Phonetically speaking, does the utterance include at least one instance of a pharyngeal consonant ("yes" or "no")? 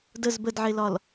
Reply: yes